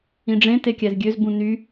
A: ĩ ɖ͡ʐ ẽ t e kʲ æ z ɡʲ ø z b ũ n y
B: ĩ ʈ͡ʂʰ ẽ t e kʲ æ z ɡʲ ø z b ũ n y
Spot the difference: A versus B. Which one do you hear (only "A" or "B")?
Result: A